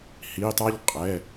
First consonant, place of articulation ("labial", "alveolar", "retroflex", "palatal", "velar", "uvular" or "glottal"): glottal